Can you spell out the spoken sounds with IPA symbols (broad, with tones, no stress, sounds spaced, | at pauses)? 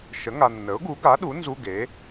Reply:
ʃ ə˩˥ ŋ a˨ nː ə˩˥ ʊ̯ ɡ u˩˥ ɡ a˩˥ ɗ u˩˥ n z u˧˥˧ ɡ e˩˥